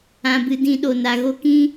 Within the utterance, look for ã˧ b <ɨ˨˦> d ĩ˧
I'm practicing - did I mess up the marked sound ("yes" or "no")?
yes